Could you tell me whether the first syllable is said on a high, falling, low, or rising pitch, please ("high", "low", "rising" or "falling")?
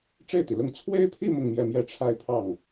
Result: falling